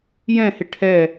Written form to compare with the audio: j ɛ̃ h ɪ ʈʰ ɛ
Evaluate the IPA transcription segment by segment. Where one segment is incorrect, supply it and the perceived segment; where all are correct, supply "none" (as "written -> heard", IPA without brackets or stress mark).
none